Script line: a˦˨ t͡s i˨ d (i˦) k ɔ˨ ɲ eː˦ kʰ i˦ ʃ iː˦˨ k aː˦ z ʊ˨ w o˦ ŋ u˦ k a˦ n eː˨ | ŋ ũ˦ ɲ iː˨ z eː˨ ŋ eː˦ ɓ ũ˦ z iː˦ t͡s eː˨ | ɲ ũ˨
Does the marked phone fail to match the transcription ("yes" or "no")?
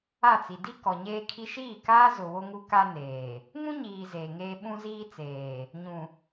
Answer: no